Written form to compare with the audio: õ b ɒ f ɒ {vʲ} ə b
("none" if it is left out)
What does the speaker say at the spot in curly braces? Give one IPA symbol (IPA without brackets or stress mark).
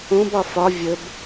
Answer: vʲ